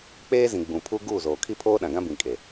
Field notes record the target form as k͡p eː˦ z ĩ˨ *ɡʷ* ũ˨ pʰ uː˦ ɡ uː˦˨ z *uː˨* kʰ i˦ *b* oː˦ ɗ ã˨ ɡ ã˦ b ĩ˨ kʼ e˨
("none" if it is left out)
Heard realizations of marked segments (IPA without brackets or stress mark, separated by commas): ɡ͡b, oː˨, pʰ